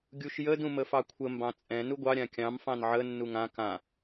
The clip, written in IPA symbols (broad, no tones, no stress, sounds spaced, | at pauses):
ɡʲ u ʃ j ə d ũ m ə f ɑ kʷʰ ə m b ɑ̃ t͡sʼ ɛ̃ n u ɡʷ ɑ ɾʲ ã kʲ ɑ̃ m f ɑ̃ n ʕ ə nː u ŋ ã k ã